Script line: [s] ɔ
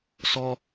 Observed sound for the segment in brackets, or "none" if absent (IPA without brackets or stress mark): s